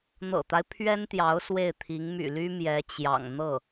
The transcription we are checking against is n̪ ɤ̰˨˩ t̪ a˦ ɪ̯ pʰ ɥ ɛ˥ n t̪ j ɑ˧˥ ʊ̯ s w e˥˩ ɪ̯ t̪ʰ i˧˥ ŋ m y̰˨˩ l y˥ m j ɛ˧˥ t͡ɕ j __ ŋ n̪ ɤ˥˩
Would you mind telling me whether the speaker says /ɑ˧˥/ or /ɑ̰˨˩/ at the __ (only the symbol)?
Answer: ɑ̰˨˩